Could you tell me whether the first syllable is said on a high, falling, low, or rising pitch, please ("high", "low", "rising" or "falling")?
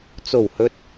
low